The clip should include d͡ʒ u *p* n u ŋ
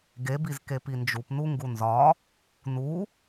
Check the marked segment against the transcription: correct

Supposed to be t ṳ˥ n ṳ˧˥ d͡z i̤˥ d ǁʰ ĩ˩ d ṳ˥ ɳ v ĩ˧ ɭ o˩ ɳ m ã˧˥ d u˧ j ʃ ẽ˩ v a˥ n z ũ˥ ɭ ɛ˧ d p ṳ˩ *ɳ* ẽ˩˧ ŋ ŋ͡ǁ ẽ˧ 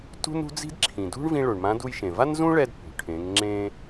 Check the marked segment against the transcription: incorrect: ʈʰ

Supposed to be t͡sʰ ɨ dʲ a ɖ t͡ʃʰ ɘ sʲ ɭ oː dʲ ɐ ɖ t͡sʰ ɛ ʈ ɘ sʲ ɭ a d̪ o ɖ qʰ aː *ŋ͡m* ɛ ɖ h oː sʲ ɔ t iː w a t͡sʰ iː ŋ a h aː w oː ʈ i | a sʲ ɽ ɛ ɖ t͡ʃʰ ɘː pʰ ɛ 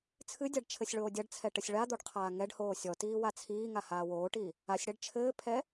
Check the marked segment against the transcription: incorrect: ŋ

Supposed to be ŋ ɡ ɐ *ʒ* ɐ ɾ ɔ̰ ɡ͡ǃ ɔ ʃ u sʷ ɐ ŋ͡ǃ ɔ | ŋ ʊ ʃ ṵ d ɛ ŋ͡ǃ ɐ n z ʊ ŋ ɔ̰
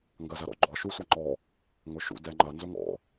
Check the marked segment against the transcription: incorrect: z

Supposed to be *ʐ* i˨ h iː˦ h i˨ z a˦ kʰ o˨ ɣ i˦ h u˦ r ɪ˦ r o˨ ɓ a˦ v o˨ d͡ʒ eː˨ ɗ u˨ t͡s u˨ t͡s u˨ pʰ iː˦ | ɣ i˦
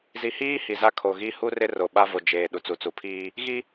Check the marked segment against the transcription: incorrect: z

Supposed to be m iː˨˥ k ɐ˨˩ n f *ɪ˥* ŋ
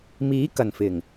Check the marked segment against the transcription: incorrect: ɪ˨˩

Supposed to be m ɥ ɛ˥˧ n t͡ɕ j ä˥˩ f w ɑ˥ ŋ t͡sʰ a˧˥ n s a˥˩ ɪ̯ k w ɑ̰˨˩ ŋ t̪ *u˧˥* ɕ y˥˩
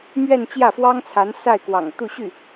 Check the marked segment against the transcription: incorrect: u˥˧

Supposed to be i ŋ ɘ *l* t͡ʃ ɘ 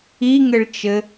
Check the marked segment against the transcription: incorrect: ɭ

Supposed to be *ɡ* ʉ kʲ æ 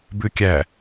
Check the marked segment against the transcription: incorrect: b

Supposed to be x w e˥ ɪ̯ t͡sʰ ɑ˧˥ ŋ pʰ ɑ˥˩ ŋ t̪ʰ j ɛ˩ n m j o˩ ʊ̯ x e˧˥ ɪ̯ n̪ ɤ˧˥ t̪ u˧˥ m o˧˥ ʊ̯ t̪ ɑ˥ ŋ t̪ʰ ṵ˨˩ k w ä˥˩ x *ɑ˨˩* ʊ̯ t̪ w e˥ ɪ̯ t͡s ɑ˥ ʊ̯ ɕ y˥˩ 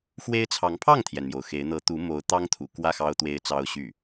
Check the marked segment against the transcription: incorrect: ɑ˥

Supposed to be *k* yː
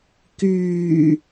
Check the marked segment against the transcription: correct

